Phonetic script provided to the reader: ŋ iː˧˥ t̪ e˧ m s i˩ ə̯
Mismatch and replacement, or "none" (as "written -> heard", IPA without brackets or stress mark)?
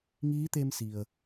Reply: none